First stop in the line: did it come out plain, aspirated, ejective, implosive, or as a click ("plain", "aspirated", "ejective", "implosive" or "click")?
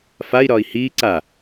click